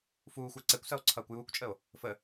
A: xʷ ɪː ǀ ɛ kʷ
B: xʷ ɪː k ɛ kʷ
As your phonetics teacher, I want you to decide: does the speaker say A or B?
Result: A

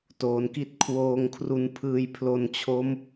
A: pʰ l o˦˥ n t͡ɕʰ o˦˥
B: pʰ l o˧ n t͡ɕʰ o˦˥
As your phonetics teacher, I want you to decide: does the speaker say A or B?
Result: B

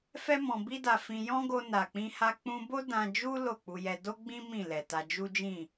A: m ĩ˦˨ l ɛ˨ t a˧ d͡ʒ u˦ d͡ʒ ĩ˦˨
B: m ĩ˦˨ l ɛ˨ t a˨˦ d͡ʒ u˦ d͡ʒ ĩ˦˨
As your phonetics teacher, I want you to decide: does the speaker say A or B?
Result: A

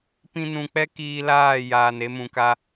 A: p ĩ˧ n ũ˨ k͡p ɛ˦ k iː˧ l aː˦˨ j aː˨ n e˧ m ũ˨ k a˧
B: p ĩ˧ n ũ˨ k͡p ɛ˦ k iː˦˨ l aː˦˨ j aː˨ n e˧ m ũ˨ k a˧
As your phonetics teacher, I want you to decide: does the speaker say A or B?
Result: A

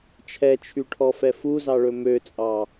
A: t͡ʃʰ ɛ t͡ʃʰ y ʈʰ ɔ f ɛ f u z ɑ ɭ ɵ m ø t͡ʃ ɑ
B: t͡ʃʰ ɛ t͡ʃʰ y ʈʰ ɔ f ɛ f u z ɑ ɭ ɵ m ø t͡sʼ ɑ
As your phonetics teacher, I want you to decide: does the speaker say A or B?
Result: B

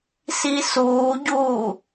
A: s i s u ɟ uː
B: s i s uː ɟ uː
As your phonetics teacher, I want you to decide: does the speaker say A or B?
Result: B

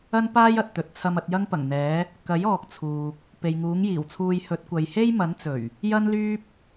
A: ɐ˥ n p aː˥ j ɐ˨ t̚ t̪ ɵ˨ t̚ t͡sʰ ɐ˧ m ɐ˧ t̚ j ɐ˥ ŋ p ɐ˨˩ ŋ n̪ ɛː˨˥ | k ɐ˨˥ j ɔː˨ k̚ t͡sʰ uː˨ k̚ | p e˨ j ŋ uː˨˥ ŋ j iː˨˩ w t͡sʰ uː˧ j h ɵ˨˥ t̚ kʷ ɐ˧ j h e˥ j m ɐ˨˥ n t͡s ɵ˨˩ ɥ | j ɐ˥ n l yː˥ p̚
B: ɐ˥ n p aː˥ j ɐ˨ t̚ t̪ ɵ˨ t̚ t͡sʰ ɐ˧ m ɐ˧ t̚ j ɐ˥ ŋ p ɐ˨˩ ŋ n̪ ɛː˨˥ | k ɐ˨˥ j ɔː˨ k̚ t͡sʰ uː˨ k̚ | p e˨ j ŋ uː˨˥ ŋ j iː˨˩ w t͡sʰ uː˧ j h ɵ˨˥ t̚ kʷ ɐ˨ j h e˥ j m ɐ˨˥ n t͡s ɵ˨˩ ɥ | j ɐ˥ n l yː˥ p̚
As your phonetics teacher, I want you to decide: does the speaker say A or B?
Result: B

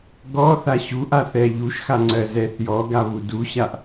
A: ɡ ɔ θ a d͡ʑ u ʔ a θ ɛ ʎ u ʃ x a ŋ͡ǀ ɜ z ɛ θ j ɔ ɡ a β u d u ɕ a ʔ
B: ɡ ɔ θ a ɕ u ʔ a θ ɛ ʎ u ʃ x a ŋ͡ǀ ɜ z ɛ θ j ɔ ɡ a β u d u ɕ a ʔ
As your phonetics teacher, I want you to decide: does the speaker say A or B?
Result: B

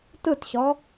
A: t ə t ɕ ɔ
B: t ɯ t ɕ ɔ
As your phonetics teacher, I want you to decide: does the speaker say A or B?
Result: B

